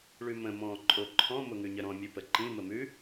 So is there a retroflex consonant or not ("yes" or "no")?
yes